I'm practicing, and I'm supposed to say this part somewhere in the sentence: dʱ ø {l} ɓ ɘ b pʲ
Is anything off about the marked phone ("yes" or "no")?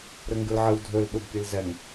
no